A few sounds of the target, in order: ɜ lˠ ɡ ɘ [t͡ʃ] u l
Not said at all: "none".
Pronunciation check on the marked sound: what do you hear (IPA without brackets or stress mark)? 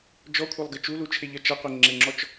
t͡ʃ